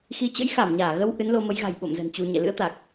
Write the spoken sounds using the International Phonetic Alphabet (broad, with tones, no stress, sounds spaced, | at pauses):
x i˨˦ t͡ɕ ə̰˧˥ j x a˧˩ m ɲ aː˧˩ ɣ ə˧ w ʔ ɨ˨˦ n l o˧ m ə˨˦ j ɣ a̤˨˩ j ɓ o̰˧˨ m z ə̤˨˩ n t͡ɕ u˧ ɲ ɛ̰˧˨ l ɨ̰˧˥ ə̯ t̪ a˨˩ k̚